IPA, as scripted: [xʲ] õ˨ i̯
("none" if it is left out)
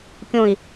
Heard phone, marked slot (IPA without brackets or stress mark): kʲ